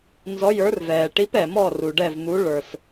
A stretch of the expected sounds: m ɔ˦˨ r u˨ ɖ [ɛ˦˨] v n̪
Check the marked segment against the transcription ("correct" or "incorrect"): correct